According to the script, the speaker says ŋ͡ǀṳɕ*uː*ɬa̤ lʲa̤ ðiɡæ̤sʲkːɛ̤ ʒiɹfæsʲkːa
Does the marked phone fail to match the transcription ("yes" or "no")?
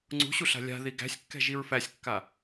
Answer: yes